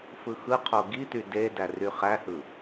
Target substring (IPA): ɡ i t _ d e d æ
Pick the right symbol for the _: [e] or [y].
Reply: y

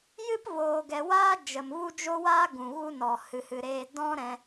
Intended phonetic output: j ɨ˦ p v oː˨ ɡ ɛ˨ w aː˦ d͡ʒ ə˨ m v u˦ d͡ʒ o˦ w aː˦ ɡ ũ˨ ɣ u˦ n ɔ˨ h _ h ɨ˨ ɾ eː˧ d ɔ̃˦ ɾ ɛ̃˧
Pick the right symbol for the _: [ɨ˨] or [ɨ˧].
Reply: ɨ˨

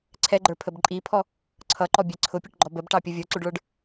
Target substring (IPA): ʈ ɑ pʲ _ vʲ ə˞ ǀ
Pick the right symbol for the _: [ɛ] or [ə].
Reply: ə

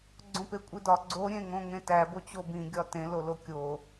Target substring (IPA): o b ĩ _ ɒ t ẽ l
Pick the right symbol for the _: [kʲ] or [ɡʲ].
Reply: ɡʲ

